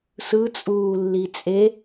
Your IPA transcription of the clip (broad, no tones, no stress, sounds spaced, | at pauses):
s ɯ t͡sʼ uː lː i t͡sʼ e